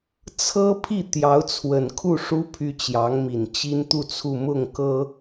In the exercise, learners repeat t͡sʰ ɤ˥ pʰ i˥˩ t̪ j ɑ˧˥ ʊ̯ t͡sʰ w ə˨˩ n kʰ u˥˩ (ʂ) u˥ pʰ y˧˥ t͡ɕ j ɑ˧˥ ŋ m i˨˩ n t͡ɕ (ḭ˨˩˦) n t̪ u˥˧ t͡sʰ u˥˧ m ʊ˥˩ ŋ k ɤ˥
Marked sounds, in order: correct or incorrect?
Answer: correct, incorrect: i˥

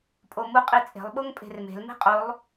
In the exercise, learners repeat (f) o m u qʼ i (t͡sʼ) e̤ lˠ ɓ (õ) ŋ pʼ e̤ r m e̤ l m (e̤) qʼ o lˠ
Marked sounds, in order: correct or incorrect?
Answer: incorrect: pʼ, correct, incorrect: o, correct

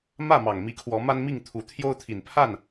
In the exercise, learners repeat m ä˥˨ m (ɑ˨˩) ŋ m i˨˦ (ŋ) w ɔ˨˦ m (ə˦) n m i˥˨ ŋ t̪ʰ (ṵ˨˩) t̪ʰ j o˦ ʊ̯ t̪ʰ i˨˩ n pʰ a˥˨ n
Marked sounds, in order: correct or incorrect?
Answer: correct, incorrect: kʰ, incorrect: a˦, incorrect: u˨˦

